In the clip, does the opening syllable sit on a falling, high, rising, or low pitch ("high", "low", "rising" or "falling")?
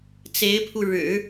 rising